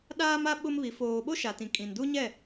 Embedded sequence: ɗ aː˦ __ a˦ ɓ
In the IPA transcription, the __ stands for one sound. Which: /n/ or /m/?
m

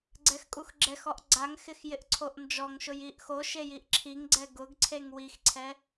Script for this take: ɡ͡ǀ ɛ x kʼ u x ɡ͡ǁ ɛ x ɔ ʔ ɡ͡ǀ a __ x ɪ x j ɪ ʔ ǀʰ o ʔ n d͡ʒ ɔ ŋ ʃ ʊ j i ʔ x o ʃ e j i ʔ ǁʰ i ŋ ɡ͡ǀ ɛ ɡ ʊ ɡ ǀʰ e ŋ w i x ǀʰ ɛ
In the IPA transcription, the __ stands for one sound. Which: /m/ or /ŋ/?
ŋ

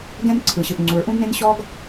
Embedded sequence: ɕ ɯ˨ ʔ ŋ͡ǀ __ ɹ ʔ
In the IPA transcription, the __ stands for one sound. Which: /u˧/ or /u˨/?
u˨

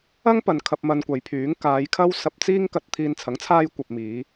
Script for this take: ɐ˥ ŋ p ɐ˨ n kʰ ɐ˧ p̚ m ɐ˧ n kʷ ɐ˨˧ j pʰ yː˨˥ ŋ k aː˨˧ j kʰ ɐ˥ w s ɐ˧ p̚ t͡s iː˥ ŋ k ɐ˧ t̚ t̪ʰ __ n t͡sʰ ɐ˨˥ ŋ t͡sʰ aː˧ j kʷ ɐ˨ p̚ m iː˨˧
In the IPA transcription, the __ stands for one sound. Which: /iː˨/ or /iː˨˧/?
iː˨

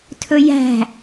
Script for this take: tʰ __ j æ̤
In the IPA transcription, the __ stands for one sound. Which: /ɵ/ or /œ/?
ɵ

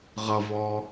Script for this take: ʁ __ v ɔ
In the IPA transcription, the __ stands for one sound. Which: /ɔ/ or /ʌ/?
ʌ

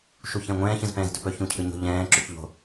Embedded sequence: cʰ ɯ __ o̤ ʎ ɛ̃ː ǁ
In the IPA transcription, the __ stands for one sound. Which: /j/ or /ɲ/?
ɲ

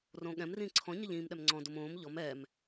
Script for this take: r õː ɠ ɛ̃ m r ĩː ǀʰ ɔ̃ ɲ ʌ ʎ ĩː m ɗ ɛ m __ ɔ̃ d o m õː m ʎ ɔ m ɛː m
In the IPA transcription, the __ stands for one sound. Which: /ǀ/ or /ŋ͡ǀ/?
ŋ͡ǀ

